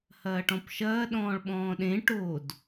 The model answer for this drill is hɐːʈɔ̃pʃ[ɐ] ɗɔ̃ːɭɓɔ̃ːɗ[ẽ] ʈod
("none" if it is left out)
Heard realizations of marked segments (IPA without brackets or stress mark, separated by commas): ɐː, ẽ